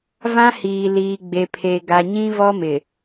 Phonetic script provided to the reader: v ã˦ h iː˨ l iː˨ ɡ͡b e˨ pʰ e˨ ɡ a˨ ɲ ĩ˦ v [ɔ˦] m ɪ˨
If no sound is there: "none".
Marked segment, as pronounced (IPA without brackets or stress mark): ɔ˦